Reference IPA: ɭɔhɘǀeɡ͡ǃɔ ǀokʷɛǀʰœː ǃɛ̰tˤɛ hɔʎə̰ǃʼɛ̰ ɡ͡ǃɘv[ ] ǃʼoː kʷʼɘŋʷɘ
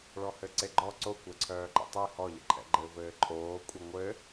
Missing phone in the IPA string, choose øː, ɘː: ɘː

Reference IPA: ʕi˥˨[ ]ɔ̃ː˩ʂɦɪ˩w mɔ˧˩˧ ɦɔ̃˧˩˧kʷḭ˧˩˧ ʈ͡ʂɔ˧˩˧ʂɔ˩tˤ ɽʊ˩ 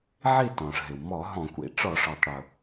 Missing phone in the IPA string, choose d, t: t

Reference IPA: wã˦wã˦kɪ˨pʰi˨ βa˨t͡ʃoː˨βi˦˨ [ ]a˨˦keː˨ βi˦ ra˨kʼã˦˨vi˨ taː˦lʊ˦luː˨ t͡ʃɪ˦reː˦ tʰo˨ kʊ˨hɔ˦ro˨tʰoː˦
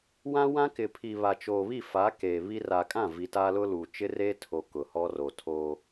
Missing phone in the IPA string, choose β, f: f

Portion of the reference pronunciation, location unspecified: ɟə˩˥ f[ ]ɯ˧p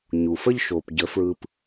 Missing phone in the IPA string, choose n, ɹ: ɹ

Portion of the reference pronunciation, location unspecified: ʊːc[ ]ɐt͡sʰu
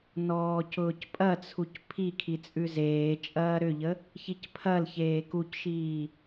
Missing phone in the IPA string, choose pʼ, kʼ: pʼ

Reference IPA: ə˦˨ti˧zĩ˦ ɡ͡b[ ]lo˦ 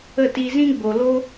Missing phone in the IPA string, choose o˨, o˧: o˧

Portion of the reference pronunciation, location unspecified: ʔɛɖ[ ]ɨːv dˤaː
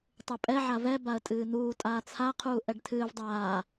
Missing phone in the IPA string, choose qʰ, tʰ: tʰ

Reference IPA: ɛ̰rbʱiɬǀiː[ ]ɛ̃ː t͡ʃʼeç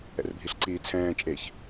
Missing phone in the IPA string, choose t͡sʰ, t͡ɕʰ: t͡sʰ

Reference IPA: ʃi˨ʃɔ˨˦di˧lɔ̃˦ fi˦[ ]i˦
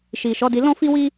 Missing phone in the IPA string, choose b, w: w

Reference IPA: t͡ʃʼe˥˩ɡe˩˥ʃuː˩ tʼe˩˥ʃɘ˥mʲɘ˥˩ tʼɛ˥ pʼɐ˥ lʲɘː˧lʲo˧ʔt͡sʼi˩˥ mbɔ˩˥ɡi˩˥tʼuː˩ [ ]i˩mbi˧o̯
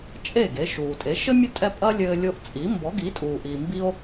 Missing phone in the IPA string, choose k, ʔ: ʔ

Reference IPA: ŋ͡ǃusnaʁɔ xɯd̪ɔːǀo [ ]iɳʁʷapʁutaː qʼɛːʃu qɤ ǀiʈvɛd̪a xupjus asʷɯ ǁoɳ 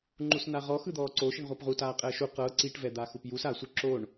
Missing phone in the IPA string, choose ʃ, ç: ʃ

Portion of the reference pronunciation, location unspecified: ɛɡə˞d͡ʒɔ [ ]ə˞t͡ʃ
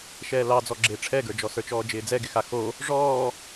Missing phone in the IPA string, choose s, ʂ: s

